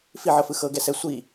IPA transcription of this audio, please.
f i ʕ ɤ f ɯ x ɤ ɡ ɛ s ɛ sʷ i

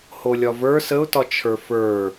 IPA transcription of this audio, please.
h o lʲ ɒ v ə˞ s ə ʊ̯ t ɒ t͡ʃʰ ə˞ f ə˞

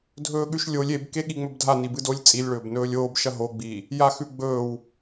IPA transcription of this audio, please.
dʱ ɵː ɠ ʉ ʃ lʲ o lʲ e b k e ɠ i ŋ͡m ɵ b dʱ a n i b ɨ d o lʲ t͡sʼ i lʲ ɭ ɵː b n ɵː lʲ oː b ʃ ɐ ɦ o ɡ͡b iː | j a x ʉ ɡ͡b ɵː w

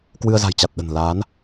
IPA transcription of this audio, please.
k w ɨ˧ ə̯ z a̤˨˩ j t͡ɕ a˨˩ t̚ ɗ ə̤˨˩ n l a˨˦ n

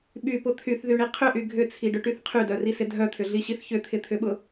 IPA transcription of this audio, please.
ɓ y p ʊ t̪ʰ y θ ð y ɳ i qʰ ʏ ʔ y ɡʱ ʏ t͡sʰ i ɖ ʏ ʈ y θ qʰ y d œ r i s ɪ dʱ œ t̪ʰ ʏ ɮ i ɕ i θ ç ʏ t̪ʰ ɪ t̪ʰ ʏ ɓ ʊ

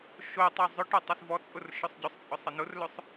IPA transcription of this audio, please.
ʃ o tˤ o zˤ ʊ ʈ ɔ tˤ ə s v ɔ t͡sʼ ʊ r ʃ ɵ sˤ ɟ ʊ sˤ t͡sʼ ʊ sˤ ə n ʊ r l ɵ sˤ

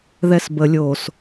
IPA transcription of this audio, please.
ð ɛ s b ə lʲ o s

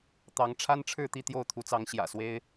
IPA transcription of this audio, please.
t̪ ɑ˨˦ ŋ ʈ͡ʂʰ a˦ n ʈ͡ʂʰ ɻ̩˥˨ t̪ i˥˨ t̪ j o˥˨ ʊ̯ t̪ʰ u˨˦ t͡s ɑ˨˦ ŋ ɕ j ä̰˨˩ s w e˦ ɪ̯

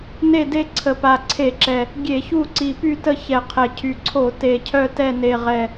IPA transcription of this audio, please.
n e˦˨ d e˦˨ ǀʰ ə˨˩ p a˨˩ ǀʰ e˧˩˧ ǁ ɛ˨˩ | ɡʲ e˧˩˧ ç u˦˨ ǀ i˨˩ p y˦˨ t ə˦˨ ç ɛ˨˩ qʰ ɛ˨˩ cʰ y˨˩ ǀʰ o˧˩˧ t e˨˩ cʰ œ˦˨ t ɛ˦˨ n e˨˩ ʁ ɛ˨˩

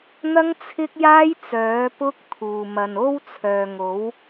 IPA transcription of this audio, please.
n̪ ɐ˥ ŋ t͡sʰ ɪ˥ k̚ j aː˥ j t͡s œː˨˥ p ʊ˥ k̚ t̪ʰ uː˨ m ɐ˨ n o˥ w t͡sʰ œː˨ ŋ o˨˥ w

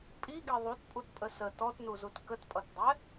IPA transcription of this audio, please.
pʼ i ɡ e ðˤ u t pʼ u t pʼ ə s ə t ɔ t n u z u t k ə t pʼ ʌ t dˤ ɛ

